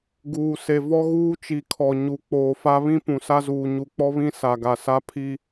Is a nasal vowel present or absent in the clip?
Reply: present